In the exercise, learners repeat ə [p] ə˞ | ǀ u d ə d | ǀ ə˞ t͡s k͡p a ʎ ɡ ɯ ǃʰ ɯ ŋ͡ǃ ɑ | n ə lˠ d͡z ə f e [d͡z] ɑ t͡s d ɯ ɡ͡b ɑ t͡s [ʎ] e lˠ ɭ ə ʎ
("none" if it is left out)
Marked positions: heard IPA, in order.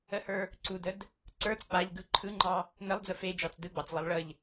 h, d͡ʒ, lˠ

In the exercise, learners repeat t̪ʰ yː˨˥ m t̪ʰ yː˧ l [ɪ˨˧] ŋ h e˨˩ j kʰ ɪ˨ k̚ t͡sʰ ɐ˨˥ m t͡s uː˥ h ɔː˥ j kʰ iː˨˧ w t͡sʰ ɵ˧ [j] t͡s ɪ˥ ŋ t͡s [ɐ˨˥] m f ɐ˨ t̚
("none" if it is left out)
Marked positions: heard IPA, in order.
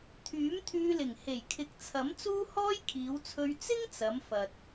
ɪ˨˩, ɥ, ɐ˨˧

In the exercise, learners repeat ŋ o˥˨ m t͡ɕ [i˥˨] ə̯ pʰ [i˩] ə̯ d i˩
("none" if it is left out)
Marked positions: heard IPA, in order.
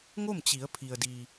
i˩˧, i˩

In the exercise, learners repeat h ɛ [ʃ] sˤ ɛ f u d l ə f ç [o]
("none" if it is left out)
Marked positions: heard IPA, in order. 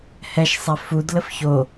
ʃ, o

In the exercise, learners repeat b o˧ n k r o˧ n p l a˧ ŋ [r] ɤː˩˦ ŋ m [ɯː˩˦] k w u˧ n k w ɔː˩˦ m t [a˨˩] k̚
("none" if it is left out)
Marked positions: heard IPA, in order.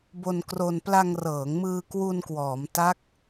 r, ɯː˧, a˦˥

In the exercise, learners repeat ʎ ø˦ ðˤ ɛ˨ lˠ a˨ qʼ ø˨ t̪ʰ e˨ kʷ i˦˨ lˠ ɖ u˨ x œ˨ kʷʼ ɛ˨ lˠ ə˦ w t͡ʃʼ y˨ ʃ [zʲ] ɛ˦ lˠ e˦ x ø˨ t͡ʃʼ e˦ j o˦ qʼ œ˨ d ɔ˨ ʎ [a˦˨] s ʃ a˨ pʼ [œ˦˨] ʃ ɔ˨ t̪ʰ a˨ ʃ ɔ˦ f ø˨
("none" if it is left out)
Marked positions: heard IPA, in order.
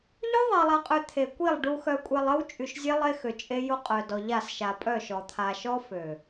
zʲ, a˦˨, œ˦˨

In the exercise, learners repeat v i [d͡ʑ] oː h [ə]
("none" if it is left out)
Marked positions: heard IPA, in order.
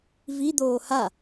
d̪, a

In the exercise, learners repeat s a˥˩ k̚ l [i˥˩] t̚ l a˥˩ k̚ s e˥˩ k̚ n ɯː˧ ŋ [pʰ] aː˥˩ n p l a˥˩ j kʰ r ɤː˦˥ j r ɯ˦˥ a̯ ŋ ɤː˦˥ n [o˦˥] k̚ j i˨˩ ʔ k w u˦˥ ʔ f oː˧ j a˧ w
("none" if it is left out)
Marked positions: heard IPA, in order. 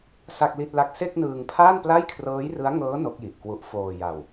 i˥˩, pʰ, o˦˥

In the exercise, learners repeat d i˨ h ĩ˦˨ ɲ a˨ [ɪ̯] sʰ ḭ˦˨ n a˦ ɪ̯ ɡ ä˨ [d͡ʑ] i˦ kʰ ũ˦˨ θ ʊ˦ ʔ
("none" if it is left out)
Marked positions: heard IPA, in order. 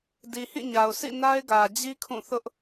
ʊ̯, d͡ʑ

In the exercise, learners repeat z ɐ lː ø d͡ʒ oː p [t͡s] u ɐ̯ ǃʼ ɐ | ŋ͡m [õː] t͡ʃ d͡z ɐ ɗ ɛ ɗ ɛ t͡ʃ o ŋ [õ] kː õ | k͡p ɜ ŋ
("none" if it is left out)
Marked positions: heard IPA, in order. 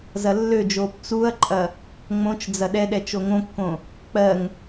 t͡s, õ, õ

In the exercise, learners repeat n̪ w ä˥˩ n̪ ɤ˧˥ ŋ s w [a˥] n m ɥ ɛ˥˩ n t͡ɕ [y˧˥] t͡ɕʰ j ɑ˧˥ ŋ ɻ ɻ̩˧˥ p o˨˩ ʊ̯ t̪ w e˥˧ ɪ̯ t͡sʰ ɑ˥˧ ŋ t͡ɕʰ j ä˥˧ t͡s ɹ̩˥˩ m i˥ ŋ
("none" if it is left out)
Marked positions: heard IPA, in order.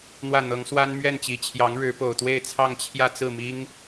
a˥, i˧˥

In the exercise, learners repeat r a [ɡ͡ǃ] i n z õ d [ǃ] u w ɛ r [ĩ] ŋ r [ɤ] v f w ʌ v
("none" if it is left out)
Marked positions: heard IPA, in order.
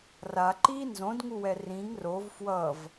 ǃ, ŋ, ĩ, o

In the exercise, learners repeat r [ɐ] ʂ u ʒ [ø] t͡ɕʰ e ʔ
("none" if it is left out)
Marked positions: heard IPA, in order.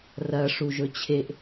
ɐ, ɵ

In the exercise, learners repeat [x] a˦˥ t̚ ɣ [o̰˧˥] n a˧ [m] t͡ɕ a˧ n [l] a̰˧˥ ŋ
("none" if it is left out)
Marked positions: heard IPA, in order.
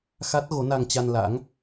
x, o˨˦, ŋ, l

